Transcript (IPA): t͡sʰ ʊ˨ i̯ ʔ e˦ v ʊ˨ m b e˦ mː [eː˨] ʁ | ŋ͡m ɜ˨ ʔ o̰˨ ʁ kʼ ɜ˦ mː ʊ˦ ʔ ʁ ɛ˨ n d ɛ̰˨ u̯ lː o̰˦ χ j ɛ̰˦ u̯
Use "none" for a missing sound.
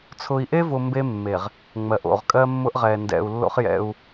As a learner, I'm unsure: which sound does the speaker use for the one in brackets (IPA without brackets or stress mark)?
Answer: e˨